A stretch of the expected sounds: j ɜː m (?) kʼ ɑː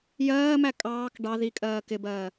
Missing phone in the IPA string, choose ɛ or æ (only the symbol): æ